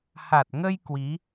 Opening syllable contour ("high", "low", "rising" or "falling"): low